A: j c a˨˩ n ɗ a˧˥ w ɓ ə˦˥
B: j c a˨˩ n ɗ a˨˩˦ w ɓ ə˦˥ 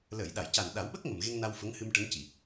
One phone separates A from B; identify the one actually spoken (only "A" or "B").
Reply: B